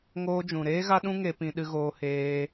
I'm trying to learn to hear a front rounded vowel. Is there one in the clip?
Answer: no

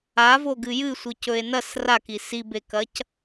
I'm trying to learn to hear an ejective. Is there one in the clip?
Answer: no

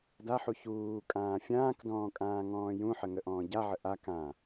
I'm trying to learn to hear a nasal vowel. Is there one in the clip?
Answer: yes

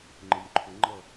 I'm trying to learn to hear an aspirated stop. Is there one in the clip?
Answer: yes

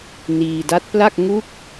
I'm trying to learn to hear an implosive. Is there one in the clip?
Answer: no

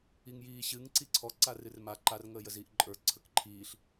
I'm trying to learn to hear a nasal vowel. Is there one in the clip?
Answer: no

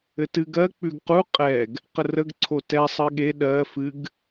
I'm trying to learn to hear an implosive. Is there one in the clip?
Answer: yes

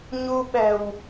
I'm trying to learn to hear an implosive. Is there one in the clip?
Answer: yes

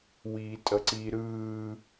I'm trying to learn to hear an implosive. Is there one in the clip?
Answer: no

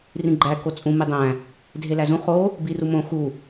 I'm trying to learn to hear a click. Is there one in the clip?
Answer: yes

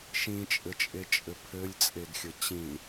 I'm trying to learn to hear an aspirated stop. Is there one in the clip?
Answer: yes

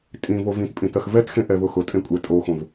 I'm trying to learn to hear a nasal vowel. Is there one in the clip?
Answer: yes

